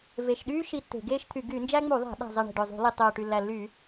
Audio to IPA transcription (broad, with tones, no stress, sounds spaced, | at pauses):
v e˨˩ ʃ ɗ yː˦ ʃ i˦ tː e̤˧˩˧ ɡ eː˦ ʃ t̪ʰ y˧˩˧ ɡ y˧˩˧ n d͡ʒ æ˦ ŋ͡m u˧˩˧ ðˤ æ̤˧˩˧ ɗ æ̤˨˩ zˤ e˨˩ ɳ e̤˨˩ ɖ ø˨˩ zˤ ṳ˧˩˧ l i˨˩ tˤ øː˨˩ ʈ y˨˩ lː æ˨˩ lː yː˧˩˧